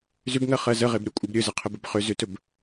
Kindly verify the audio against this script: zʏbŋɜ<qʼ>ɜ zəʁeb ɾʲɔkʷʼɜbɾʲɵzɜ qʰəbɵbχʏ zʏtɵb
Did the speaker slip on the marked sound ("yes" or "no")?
yes